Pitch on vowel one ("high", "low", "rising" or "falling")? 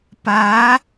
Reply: rising